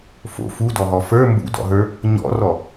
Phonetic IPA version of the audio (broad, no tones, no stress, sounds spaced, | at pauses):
f o̰ f u d ɔ ɦ ɔ f ə˞ m b ṵ d ɔ̰ ɦ ə˞ | ɲ ɔ̰ r ɔ